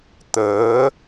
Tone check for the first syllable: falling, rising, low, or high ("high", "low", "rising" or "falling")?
rising